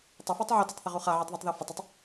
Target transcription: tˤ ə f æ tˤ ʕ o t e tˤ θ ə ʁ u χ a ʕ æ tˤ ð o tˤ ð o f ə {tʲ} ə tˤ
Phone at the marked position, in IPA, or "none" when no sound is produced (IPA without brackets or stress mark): tˤ